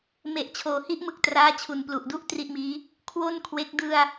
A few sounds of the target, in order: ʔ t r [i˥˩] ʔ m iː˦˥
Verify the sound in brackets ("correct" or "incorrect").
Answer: correct